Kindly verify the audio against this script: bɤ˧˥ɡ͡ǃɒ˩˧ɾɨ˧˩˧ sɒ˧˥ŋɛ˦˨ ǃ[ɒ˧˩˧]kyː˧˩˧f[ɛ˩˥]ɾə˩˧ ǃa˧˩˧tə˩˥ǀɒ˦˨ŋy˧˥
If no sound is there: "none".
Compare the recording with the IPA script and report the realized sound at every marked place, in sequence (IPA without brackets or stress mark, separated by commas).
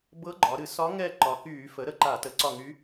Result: ɒ˩˧, ə˩˥